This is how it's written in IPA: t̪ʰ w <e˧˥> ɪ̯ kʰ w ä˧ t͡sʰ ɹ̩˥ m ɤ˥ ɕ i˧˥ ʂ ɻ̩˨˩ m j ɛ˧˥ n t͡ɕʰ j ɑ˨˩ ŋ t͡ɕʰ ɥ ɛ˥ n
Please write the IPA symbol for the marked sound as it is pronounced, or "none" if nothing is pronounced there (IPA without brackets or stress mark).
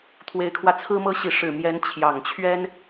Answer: e˧˥